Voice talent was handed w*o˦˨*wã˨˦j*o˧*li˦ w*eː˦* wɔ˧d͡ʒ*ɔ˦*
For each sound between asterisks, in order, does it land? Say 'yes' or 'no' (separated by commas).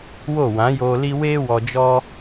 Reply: yes, no, yes, yes